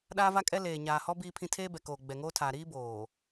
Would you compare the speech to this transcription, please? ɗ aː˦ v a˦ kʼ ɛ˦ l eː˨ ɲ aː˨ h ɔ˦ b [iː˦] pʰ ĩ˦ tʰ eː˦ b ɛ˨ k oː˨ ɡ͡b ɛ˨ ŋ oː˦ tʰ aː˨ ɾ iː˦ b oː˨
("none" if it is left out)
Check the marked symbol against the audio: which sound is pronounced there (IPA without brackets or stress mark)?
iː˦